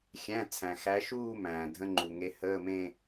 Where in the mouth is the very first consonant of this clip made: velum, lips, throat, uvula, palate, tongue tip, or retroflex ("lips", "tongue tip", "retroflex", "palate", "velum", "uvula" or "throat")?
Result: velum